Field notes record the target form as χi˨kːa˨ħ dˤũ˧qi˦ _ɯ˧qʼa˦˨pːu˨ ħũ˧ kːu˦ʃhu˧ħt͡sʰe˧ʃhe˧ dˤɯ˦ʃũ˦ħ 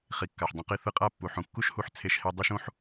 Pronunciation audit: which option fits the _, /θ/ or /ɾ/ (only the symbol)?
θ